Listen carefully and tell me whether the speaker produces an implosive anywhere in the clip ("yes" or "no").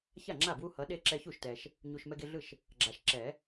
yes